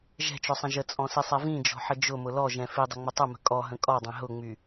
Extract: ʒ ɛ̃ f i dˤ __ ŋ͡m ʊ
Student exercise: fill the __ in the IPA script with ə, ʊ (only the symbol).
ə